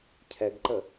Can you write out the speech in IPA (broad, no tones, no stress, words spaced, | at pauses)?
cʰɛɡǃə